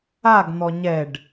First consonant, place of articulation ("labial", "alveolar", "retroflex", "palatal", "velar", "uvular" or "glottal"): velar